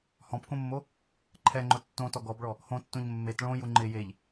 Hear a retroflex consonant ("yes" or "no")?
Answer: yes